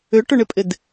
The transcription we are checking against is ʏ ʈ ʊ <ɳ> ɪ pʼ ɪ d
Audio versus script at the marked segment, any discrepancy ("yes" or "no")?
no